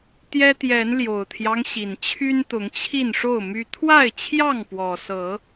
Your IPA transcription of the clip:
t̪jɛ˦t̪jɛ˨˦nljo˨˩ʊ̯t̪ʰjɑ˦ŋ ɕi˨˩nt͡ɕʰy˦n t̪ʊ˨˦ŋt͡ɕʰi˥˨n ʂo˥˨ʊ̯my˦ t̪ʰwa˥˨ɪ̯t͡ɕʰjɑ˥˨ŋpwɔ˨˩sɤ˨˦

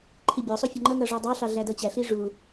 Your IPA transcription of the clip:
ǃʰibʲɔsˤu fʲɔŋ͡ǃʌŋʌ ʐɔdˤɑɬɑ ɮædʌt͡ɕæɬi ʐu

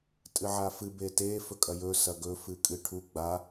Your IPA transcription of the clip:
tʼɨʕafɨ bete fɵkʼɐjɵ sɐɡɵ fɨkʼɨʈʰu ɡ͡ba

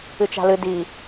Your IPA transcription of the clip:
ɨt͡ʃa̤lɨ di

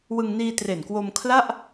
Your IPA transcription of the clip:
wɯ˧ŋniː˧ tre˨˩nkwo˧m kʰla˥˩ʔ

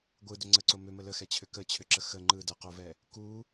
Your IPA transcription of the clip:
ɡʷɯdʏ ŋ͡ǀəǀo mʏmə ləxɛt͡ɕʰʏ kət͡ɕʰʏǁə xə ŋ͡ǃɯ dəqovɛ | ku

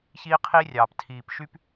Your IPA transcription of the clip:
çiː˦qʰiː˦rʲɑː˨p tʰiː˨pʃy˦p

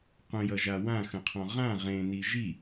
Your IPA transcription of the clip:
qʷə̃jʌʒa wãxə̃qʰɔ̃ ʁã ʁẽni ʒi

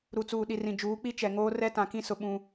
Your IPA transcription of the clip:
ɾu˨t͡suː˨ɗi˨ rĩ˨d͡ʒuː˨˦k͡pi˦ t͡ʃɛ˨ŋoː˦ rɛ˦tã˨kĩ˦sʊ˨ ɓũ˦

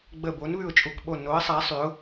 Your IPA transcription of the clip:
ɡ͡bə˧˩ bo˨˦nβʉ˧˩ʊ̯t͡ʃʼu˧˩kɓo˧˩ no˨˦ə̯sˤa˨˦ sˤy˨˦ʊ̯

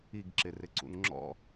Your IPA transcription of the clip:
iɡǁɪ rɪǀṵnŋ͡ǁɔ̰

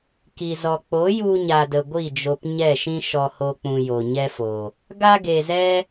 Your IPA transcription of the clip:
ki˧zɔ˧ k͡po˨˦ju˧ ɲa˧də˧ ɡʷi˦˨d͡ʒo˧pɲɛ˦˨ʃĩ˦ ʃɔ˧ho˧ k͡pũ˧ jo˧ɲɛ˦fo˧ | ɡa˦ɡe˧zɛ˦

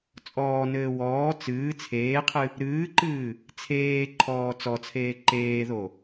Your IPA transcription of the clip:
t͡sʼɔːnɘː wɔː t͡sɨː t͡sʰeːqʰɨ | ɾɨːǃɨː | t͡sʰeːǃʰɔː t͡sɔt͡sʰeː ǃeːðo

